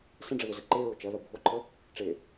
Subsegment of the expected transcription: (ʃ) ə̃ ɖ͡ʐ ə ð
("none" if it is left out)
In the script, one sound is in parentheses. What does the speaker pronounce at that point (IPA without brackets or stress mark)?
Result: s